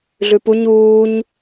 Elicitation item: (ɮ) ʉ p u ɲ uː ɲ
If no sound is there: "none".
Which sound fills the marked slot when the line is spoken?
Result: ɮ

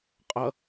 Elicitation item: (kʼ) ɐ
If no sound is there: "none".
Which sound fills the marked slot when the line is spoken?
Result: qʼ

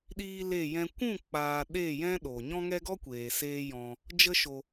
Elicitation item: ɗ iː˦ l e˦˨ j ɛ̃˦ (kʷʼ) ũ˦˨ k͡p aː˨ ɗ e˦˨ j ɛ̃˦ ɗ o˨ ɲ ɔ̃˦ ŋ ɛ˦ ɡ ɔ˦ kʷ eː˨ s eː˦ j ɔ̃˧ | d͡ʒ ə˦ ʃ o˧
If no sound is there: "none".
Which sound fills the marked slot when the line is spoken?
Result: kʷ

